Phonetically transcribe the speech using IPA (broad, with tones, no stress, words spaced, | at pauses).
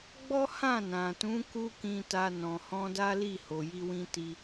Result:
ɡ͡bɔ˦hã˦˨nã˨tũ˨˦ ku˦kĩ˧ta˧ nɔ̃˨hɔ̃˧da˦li˦˨ ho˨ji˧wĩ˧ ti˧